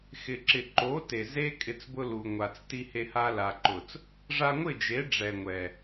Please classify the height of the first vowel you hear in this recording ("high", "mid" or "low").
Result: high